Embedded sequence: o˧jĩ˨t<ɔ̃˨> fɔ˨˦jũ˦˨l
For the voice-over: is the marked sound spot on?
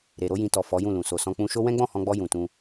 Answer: no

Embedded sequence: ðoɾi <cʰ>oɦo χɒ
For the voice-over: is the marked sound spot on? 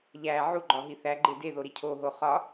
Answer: yes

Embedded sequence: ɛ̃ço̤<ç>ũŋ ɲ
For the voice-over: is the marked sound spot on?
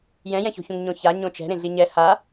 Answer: yes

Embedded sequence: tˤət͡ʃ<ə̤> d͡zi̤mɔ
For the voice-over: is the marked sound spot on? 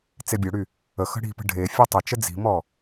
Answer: no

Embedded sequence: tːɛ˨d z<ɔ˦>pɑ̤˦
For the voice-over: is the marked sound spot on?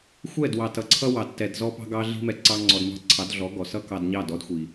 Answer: yes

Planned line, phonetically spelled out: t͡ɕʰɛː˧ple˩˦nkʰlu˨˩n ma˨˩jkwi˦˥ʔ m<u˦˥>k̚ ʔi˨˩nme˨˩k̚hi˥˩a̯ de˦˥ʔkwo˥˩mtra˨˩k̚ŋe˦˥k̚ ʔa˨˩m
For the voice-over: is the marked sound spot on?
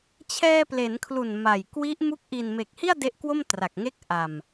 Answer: yes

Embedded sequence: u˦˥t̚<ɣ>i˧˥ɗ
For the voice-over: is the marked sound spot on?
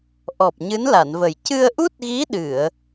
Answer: yes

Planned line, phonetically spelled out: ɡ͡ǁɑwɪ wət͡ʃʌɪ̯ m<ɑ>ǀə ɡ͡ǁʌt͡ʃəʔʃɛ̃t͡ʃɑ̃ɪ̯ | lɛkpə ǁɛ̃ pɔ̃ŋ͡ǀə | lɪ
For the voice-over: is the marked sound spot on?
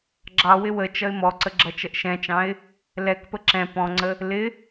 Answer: no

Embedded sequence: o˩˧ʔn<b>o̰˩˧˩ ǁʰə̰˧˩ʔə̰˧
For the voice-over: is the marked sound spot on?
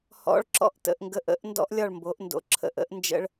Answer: no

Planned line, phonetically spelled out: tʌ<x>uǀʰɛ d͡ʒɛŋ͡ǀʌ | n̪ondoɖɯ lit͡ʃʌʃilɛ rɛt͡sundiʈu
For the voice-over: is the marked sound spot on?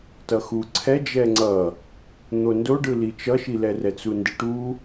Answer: yes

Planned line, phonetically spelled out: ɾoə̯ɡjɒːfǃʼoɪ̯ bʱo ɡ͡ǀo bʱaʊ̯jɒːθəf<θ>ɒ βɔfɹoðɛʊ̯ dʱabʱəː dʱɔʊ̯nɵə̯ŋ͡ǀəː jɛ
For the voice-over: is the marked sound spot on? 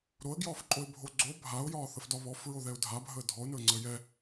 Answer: no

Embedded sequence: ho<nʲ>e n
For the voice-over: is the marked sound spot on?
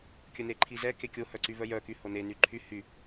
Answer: no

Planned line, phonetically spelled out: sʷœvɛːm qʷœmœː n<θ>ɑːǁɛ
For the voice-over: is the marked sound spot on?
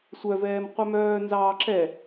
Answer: no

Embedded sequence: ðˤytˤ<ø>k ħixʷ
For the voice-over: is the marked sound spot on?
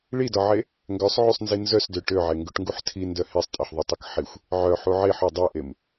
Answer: no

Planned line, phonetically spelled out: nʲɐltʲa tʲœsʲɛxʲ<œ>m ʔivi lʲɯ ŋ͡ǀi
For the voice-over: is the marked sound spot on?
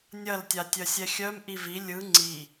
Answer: yes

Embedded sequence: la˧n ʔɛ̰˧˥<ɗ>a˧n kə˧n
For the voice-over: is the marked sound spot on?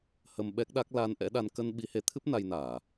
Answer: yes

